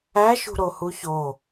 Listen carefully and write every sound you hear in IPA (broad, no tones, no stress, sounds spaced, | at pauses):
æ ʃ ṳ ɾ o h u ç o